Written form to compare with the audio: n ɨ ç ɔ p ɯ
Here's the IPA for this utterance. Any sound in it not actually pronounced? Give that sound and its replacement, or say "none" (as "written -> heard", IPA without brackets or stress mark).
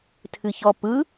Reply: n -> tʰ